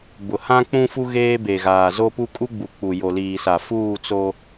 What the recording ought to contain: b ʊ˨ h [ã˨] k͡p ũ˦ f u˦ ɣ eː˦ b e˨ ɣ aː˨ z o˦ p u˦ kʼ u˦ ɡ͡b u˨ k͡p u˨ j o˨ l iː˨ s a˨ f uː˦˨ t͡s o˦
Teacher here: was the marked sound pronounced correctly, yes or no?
no